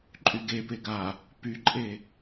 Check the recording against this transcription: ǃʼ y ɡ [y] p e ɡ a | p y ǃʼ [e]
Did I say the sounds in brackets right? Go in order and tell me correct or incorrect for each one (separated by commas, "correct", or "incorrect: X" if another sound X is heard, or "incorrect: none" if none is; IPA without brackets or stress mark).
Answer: incorrect: e, correct